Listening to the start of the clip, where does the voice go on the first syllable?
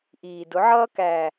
low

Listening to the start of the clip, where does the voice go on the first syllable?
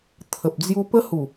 low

